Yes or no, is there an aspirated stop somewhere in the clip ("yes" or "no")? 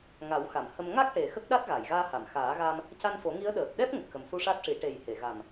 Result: no